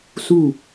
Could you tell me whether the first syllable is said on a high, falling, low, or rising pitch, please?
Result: falling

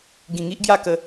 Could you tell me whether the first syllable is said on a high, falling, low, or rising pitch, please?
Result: low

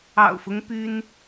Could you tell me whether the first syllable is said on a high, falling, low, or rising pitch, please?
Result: low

